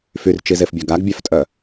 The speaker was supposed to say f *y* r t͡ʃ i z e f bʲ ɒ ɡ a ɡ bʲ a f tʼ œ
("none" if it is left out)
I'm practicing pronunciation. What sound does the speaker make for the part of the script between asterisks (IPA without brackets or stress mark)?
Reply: y